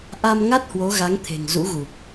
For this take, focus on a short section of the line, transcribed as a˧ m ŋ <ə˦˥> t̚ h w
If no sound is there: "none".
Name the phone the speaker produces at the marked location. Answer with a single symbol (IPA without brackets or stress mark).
a˦˥